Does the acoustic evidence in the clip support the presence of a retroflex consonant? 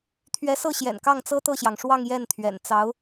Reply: yes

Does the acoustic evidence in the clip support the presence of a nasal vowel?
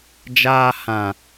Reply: yes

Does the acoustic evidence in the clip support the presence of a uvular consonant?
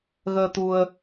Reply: no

